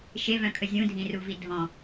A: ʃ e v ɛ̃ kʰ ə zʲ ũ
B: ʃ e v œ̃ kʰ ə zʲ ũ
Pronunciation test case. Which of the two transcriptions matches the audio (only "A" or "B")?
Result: B